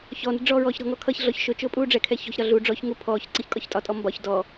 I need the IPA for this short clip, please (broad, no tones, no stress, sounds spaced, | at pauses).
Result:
ç ɔ n ə̤ ɖ͡ʐ ɔː ɹ ɔː ç ɾ ɔ̤ ŋ ɔ kʰ ʌ ç ɮ ɔ ç ʃ ʊ t͡ʃ ʊː pʼ uː ɖ͡ʐ ɛ kʰ ɛ ç ɔ̤ ç ɾ ɒ ɮ u ɖ͡ʐ ɔ ç ŋ u pʰ ɔː ç ǀ ə ç kʼ ɒ ç tʼ ɒ tʼ ɔ m b ɒ ç d ɔ